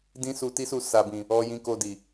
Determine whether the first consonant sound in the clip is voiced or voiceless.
voiced